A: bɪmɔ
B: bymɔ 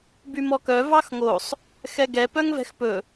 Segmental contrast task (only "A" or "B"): B